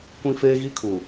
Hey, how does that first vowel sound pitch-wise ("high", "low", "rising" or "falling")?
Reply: high